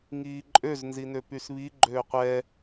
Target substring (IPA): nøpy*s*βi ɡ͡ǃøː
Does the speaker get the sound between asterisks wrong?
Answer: no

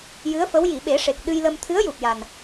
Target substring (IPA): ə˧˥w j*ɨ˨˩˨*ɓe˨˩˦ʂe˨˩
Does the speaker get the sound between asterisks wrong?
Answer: yes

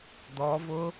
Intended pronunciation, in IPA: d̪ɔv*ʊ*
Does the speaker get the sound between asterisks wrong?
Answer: no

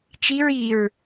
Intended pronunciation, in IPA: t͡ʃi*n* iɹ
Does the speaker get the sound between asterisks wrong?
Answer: yes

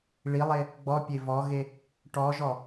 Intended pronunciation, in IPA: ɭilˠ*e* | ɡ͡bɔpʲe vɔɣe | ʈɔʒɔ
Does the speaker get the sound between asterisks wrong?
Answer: no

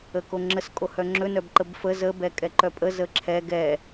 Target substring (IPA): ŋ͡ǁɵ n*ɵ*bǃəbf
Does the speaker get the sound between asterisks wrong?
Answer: yes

